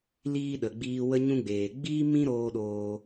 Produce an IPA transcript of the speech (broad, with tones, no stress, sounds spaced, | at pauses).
l iː˧ ɗ ə˨ ɡ͡b iː˧ w ə˧ ɲ ũ˧ ɡ͡b eː˨ ɡ͡b iː˦ m ĩ˦ ɾ oː˧ ɗ oː˧